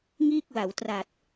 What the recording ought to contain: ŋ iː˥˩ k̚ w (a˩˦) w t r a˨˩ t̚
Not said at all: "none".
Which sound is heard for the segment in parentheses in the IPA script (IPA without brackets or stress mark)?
a˩˦